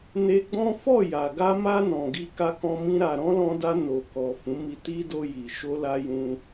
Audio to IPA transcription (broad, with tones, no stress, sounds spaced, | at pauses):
n e˧ ɡ͡b ɔ̃˦ f ɔ˦˨ j a˨ ɡ a˧ m a˧ n ɔ̃˨ ɡ i˧ k a˧ k ɔ̃˧ m ĩ˧ ɾ a˨ ɾ ɔ̃˨˦ l ɔ̃˧ d a˧ n o˨ k ɔ˨ f ũ˨˦ m i˧ t i˦ d o˧ j i˨ ʃ o˧ l a˧ j ũ˧